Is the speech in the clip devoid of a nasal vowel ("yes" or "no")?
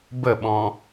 no